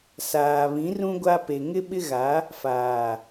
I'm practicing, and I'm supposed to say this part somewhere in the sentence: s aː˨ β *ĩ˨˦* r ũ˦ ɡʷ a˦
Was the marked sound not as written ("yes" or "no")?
no